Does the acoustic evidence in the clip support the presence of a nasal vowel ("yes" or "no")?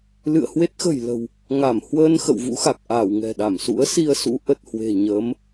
no